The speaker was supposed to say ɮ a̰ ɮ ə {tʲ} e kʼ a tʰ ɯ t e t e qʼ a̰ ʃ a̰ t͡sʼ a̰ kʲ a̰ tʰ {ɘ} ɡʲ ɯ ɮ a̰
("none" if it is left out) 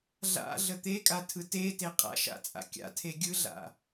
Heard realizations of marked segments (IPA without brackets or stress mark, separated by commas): t̪, e